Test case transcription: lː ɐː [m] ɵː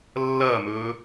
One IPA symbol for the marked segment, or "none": m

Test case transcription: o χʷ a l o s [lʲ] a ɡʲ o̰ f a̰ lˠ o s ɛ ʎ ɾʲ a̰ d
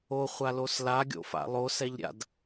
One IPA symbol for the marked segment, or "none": l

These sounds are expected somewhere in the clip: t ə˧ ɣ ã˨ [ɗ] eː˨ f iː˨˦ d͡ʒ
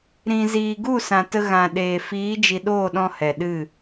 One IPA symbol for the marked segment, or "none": ɗ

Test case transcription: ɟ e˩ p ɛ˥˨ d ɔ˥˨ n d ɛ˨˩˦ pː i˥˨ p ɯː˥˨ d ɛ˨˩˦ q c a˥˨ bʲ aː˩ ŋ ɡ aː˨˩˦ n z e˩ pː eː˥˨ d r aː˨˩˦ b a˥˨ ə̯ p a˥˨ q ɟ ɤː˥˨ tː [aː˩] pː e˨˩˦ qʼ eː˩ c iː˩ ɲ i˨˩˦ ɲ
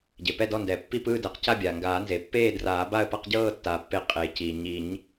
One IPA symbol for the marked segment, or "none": aː˩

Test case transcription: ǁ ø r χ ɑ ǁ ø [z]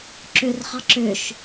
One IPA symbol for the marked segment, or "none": ʃ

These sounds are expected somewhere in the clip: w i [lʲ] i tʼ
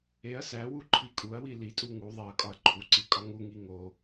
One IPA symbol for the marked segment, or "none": l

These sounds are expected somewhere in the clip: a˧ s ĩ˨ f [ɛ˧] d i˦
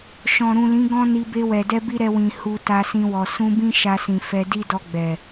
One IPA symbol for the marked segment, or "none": ɛ˧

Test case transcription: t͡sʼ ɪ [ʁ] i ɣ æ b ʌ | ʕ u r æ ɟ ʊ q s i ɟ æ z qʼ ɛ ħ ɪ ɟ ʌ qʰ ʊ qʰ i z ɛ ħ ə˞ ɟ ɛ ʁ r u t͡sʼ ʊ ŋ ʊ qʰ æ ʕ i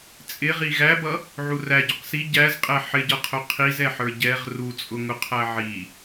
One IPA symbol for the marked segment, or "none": ʁ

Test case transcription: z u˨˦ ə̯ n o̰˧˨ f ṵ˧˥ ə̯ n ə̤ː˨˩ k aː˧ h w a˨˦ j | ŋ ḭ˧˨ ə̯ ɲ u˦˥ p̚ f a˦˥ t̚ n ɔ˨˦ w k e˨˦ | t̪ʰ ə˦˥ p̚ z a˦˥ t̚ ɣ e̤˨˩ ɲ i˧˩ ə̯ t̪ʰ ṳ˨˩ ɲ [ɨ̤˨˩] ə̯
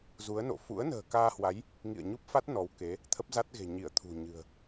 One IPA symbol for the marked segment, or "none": ɨ̤˨˩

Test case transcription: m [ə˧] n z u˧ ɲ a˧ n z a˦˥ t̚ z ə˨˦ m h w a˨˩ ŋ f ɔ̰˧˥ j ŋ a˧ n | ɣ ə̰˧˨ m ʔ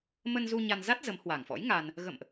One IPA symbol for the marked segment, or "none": ə˧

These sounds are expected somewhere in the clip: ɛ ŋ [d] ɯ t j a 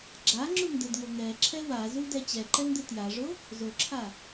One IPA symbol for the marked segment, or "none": d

